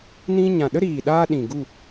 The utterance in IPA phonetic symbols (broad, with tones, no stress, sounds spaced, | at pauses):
n ĩ˧ ɲ ã˨ ɗ ə˦ ɾ iː˨ ɗ aː˧ ɗ ĩ˨ ɡ u˦˨